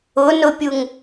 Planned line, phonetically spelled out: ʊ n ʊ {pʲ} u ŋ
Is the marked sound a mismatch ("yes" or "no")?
no